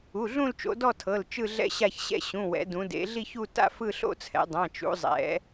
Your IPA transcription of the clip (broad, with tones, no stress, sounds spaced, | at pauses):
u˩˧˩ ɮ ũ˥˧ l t͡ʃ o̰˩˧ d ɔ˥˧ tʰ ɤ˩˧˩ l t͡ʃ ɯ˥˧ ɮ ɛ̰˥˧ ɕ a˥˧ ç ɕ ɛ̰˥˧ ɕ ũ˩˧˩ w ɛ̰˩˧ d ũ˩˧ d ḛ˩˧ ɮ i˥˧ ç u˥˧ t a̰˥˧ f ɯ˥˧ ɬ o̰˥˧ t͡sʰ ɛ̰˩˧ dˤ ã˩˧˩ t͡ʃ ṵ˩˧ zˤ ɛ̰˩˧